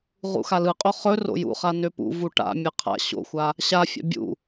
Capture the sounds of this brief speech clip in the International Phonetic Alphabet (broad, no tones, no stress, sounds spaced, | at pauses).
ʁ ṵ x a l ɯ qʼ o χ ɵ r o̰ j ṵ χ a n ø p ṵ v u ʈ a̰ mʲ ɯ qʰ a̰ ɕ o̰ xʷ a | ɕ a fʲ a̰ bʲ ṵ